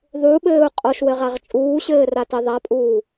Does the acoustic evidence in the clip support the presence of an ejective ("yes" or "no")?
yes